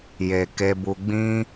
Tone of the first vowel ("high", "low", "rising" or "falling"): low